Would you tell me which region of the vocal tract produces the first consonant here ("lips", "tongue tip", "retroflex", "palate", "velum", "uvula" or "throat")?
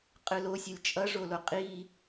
uvula